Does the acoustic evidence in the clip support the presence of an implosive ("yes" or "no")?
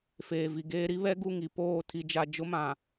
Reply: no